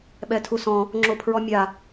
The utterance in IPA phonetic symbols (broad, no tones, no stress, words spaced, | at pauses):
ɓɛtʰusɔ̃ | ŋ͡ǁopʰɹɔmʲa